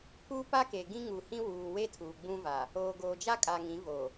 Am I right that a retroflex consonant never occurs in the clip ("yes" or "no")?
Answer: yes